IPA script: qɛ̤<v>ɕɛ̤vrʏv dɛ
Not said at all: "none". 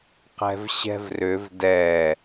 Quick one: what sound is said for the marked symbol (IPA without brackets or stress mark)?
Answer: v